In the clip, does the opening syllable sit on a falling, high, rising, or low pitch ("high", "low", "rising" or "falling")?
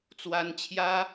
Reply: high